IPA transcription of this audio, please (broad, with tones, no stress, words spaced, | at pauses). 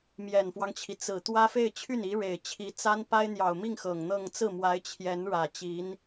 mjɛ˨˩nfwɑ˦ŋt͡ɕʰi˩ t͡sɹ̩˨˩ t̪wä˥fe˥˧ɪ̯ t͡ɕʰy˥˩ni˧˥ɻe˨˩ɪ̯t͡ɕʰi˧˥ t͡sa˥n pa˥ɪ̯n̪jɑ˨˩ʊ̯mi˥˩ŋ xɤ˨˩ŋn̪ɤ˥˧ŋ t͡sɹ̩˥˩mwa˧˥ɪ̯ t͡ɕʰjɛ˧˥nɻä˨˩ t͡ɕi˧˥n